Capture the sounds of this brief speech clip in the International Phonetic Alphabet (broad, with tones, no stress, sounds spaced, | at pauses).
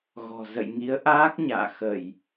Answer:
ɣ ɔ̤˨˩ z ə̰˧˨ j ŋ i˨˦ ə̯ ʔ aː˦˥ k̚ ɲ a̰ː˧˨ x ə˧˩˨ j